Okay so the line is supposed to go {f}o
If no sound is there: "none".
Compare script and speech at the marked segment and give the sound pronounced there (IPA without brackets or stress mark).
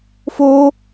f